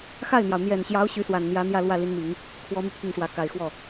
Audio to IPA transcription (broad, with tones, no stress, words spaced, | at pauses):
xa˥˩ɪ̯n̪jɑ˩ʊ̯ n̪jɛ˨˩nɕjɑ˧˥ʊ̯ ɕy˧˥swa˨˩nn̪jä˧˥ n̪jä˥˧lwä˥˩li˧˥nmi˨˩˦ŋ | kʰwɔ˧˥my˧ pʰi˥˩ŋʂwä˧˥ka˨˩ɪ̯ xwɔ˥˩